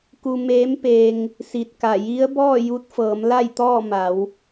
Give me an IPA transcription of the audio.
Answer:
k u˧ m eː˧˥ m p eː˧ ŋ | s i˧ t̚ k a˧˩ j i˧˥ ə̯ b ɔː˥˨ j u˧ t̚ f ɤː˩˧ m l a˥˨ j t̪ ɔː˥˨ m a˩˧ w

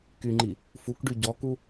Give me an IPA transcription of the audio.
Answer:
k y ŋ͡ǃ i | f u k ɖ y ɟ ɔ k u

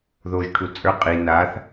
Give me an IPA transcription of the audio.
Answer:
ð o ʒ ʈʰ u t͡sʼ ə˞ qʼ i n a θ

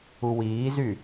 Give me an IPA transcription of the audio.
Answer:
u w iː z y

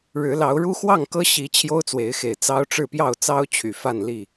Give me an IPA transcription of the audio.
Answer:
ɻ ɻ̩˨˦ l ɑ˨˦ ʊ̯ ɻ u˦ x w ɑ˥˨ ŋ k ɤ˦ ɕ i˨˦ t͡ɕʰ j o˦ ʊ̯ t͡s w e˨˦ ɪ̯ x e˨˩ ɪ̯ t͡s ɑ˦ ʊ̯ ʈ͡ʂ ɻ̩˥˨ p j ɑ˥˨ ʊ̯ t͡s ɑ˦ ʊ̯ t͡ɕʰ y˨˩ f a˥˨ n l i˥˨

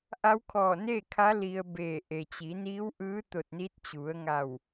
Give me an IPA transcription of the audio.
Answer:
ʔ a˧˥ w kʰ ɔː˧˩ n eː˥˨ kʰ a˧˥ l i˧ ə̯ b eː˧˩ ʔ e˩ t͡ɕ i˩˧ n iː˧˥ w ʔ ɯː˧˥ t̪ o˧˩ t̚ n i˧˥ t̚ t͡ɕ u˩˧ ə̯ ŋ a˧˩ w

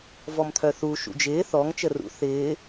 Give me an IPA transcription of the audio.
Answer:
v ɔ m t̪ʰ œ θ u ʃ ṵ d͡ʒ ɪː θ ɔ ŋ t͡ʃ ə r ṵ θ ɪː

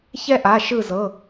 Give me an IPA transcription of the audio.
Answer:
ç ɛ˦ ʔ a˩˧˩ ʃ ɯ˧˩ z ɤ˩˧˩

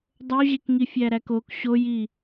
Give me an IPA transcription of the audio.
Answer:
dˤ o ʑ e k ŋ i fʲ æ ɾ æ k o k ɕ o j i

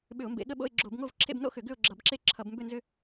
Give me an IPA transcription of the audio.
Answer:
ɓ ʏ˧˩˧ ʊ̯ m b ḛ˧˩˧ ɠ ə˥˧ ɓ o̰˥˧ ɪ̯ ɡ͡ǁ o˧˩˧ b ŋ o˥˧ v ǁʰ ḛ˥˧ b n o̰˥˧ x ʏ˧˩˧ ɡ ʏ˥˧ ʊ̯ ɡ͡ǁ ʌ˧˩˧ b ǁ e˥˧ ǁʰ ʌ˧˩˧ b m b ʏ˥˧ n z ʏ˥˧

